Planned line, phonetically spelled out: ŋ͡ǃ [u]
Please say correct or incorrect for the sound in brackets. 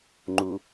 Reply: correct